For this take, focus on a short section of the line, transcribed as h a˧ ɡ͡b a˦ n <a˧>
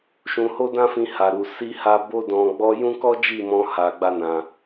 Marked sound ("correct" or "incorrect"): incorrect